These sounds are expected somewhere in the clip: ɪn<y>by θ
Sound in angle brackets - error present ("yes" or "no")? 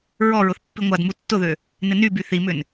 no